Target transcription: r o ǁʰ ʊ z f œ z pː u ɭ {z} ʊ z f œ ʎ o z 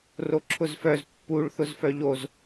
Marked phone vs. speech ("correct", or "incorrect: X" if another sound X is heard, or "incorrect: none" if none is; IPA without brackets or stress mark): incorrect: θ